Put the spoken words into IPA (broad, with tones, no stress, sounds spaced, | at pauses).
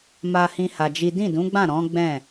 m a˦ h ĩ˦ h a˧ d͡ʒ i˦ d ĩ˦˨ d ũ˨˦ ɡ͡b ã˦˨ ɾ ɔ̃˨˦ ɡ͡b ɛ̃˦˨